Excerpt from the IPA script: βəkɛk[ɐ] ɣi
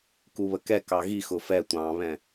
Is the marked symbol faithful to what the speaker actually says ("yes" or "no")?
no